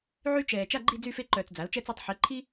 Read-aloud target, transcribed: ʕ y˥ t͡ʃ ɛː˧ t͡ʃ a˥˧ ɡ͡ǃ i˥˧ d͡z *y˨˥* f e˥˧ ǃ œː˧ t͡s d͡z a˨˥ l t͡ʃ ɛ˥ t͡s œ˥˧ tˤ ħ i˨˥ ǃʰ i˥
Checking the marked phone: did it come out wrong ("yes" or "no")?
yes